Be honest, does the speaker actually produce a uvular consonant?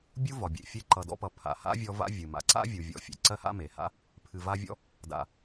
no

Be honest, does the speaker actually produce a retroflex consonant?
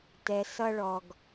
yes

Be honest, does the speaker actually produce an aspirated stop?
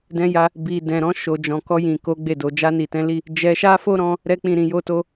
no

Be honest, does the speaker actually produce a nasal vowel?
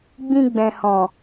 yes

